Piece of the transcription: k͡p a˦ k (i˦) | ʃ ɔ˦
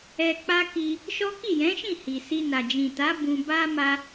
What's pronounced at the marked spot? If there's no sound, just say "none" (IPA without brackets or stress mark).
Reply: i˧